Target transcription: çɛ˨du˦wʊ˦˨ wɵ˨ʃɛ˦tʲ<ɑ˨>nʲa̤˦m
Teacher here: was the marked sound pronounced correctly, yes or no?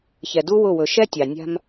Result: yes